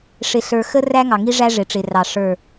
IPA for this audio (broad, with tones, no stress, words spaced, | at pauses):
ʂɪ˨ɬə˞˨ xə˦ ræ˦ŋɑ˨ ŋi˦ʐæ˦ ʐɪ˨ʈ͡ʂɪ˨rɑ˨ ʂə˞˦˨